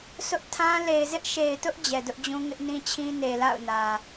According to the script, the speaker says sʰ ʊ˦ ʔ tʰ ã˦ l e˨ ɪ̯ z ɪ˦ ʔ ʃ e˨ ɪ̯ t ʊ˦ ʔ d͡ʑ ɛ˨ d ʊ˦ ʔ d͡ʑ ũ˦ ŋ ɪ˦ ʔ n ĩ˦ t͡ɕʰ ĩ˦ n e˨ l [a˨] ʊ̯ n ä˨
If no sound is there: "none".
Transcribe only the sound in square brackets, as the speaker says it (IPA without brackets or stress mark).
a̰˦˨